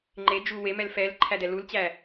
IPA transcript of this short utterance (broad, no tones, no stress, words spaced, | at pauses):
ŋ͡ǃe d͡ʒuwemɛl fɛlǃʰæ dɛlult͡ɕæ